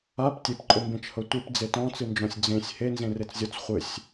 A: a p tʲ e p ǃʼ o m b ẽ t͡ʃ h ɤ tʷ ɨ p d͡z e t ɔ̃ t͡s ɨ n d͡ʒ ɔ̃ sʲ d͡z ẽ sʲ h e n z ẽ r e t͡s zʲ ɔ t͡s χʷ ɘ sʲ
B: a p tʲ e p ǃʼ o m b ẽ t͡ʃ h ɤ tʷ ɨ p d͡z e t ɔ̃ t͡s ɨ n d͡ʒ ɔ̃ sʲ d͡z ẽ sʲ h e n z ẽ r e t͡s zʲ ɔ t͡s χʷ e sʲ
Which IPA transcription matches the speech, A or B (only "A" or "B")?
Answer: A